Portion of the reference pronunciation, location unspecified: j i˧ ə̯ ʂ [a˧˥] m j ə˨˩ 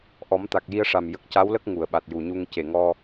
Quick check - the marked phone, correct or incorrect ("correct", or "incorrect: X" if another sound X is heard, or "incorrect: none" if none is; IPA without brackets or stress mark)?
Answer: incorrect: a˨˩